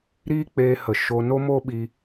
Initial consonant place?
alveolar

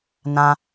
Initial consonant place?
alveolar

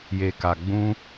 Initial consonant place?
palatal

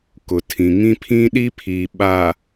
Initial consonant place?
velar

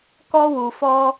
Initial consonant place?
velar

